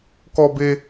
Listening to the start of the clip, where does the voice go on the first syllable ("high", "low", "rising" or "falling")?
high